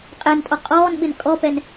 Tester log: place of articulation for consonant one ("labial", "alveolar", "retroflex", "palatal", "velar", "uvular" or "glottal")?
uvular